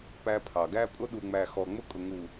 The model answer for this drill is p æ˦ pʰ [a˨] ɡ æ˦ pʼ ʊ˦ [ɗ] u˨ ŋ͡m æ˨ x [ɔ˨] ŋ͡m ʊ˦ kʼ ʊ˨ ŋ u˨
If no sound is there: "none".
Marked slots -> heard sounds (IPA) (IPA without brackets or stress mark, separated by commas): ɑ˨, ɗ, ɔ˨